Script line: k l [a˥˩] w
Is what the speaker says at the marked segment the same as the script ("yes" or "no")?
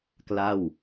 yes